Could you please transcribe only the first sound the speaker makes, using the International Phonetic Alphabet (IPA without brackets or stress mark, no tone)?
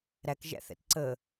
ɾ